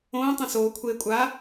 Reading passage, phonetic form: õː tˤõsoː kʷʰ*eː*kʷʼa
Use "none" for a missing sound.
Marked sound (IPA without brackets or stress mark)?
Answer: eː